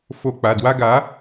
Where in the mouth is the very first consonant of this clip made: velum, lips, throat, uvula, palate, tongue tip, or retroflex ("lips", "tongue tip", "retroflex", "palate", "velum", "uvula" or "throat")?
lips